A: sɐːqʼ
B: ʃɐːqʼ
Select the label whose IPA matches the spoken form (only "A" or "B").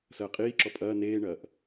A